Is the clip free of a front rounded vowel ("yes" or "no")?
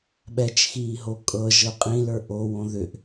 no